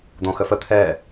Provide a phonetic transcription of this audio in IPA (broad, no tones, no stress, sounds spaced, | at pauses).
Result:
d̪ õ x ə f ə t̪ʰ ɛ